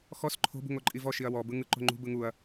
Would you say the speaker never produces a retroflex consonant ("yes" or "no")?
yes